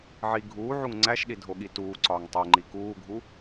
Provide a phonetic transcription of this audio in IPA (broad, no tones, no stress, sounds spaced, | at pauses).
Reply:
ʕ i ɡʱ uː ʕ u ŋ ŋ͡ǀ æ ʃ ɗ i dʱ o ɠ i t uː ǀ ɒː ŋ tˤ o ŋ͡ǃ i k uː ɡʱ u